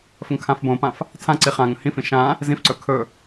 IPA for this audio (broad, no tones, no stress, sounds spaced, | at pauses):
f ə ŋ kʰ ã f b õ p ã f | tʰ ã ǀ i χ ã ŋ ə̃ h ĩ f ĩ ʃ ã | z ĩ f ǀ ɵ kʰ ɵ